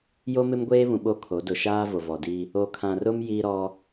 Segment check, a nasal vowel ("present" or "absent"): present